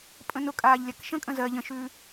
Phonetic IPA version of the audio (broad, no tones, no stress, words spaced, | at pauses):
pʼə̃nʊkʼaːʎ lʲakʃə̃kʼə̃ zɜ ʎə̃ʃʉː